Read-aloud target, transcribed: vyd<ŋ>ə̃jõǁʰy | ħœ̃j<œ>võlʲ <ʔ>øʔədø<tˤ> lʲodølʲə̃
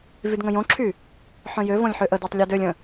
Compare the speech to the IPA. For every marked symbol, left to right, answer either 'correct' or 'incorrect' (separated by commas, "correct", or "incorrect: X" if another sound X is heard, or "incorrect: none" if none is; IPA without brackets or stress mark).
correct, incorrect: ø, incorrect: ħ, correct